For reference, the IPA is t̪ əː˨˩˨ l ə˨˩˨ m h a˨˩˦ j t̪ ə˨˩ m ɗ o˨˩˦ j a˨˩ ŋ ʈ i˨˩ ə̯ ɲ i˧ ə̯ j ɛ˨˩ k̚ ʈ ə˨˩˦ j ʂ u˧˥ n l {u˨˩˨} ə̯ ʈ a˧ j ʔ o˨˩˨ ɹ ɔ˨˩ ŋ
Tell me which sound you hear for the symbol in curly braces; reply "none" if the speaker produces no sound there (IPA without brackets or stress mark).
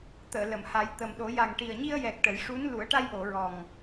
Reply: u˨˩˦